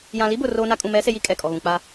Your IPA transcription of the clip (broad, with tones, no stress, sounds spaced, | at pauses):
j ã˨ l i˦ b ʊ˨ r oː˦ n a˦ kʼ ũ˨ m ɛ˨˦ s e˨ j i˦ kʼ ɛ˨ kʼ ɔ˨ ɣ ũ˨ k͡p a˦